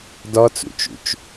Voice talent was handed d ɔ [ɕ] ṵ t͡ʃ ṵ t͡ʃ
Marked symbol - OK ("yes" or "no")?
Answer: no